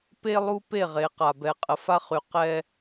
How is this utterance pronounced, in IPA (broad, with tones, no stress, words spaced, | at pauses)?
pe˦lˠu˦ pe˦˨ʁe˨˦ qa˨bɛ˨ qʼə˨fa˦χy˨ qɛ˦